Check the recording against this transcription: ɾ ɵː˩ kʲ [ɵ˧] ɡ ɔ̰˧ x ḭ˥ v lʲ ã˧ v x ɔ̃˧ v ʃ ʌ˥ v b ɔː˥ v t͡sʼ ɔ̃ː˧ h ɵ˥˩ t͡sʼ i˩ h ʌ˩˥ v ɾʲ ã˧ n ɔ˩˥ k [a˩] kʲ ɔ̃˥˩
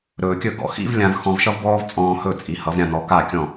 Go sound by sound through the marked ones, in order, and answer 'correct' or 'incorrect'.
incorrect: ɵ˥˩, incorrect: a˥˩

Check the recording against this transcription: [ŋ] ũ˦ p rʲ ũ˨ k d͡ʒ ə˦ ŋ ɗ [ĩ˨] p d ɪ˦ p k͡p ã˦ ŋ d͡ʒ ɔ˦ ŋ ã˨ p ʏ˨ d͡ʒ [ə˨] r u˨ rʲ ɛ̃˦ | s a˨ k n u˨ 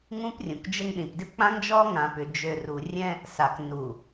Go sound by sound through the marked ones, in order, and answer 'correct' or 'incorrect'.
correct, correct, incorrect: ø˨

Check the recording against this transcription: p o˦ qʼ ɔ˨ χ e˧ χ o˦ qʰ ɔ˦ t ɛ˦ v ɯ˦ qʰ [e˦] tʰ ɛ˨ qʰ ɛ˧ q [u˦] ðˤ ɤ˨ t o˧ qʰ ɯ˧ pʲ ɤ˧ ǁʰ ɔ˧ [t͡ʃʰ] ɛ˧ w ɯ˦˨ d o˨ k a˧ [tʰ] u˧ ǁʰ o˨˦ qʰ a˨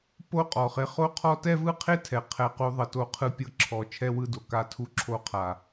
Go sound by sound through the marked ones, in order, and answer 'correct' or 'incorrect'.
correct, incorrect: u˧, correct, correct

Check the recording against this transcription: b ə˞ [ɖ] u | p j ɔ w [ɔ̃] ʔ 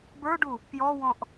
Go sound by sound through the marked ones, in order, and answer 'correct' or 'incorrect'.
correct, correct

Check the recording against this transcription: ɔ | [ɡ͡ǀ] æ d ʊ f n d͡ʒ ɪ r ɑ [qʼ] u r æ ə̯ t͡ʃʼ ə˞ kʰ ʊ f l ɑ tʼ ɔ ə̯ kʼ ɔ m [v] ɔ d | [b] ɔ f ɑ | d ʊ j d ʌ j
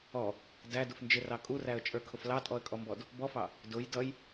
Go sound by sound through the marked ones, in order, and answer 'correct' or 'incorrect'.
incorrect: d, incorrect: kʼ, incorrect: b, correct

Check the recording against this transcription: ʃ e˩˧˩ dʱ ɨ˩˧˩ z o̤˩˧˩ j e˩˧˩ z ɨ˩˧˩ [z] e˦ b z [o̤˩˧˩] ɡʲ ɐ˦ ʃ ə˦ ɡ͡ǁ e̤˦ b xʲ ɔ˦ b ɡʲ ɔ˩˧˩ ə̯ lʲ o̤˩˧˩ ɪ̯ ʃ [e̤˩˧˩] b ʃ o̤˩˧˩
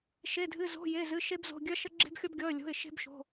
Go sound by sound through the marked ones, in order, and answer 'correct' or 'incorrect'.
incorrect: ʃ, correct, incorrect: e̤˦

